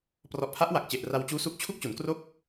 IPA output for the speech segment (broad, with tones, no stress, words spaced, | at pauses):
prɔ˨˩ʔpʰa˦˥ʔwa˨˩k̚t͡ɕe˨˩ʔ ra˧w t͡ɕuː˦˥su˦˥k̚ t͡ɕʰu˥˩k̚ t͡ɕu˩˦nkro˥˩k̚